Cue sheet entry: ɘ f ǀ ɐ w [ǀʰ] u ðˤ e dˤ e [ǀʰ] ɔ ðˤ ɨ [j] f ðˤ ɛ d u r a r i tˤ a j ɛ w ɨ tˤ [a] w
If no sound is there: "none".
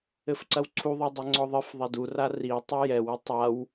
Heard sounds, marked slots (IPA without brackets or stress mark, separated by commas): ǀʰ, ŋ͡ǀ, none, a